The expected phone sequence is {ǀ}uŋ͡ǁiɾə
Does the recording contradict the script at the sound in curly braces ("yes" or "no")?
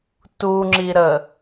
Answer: yes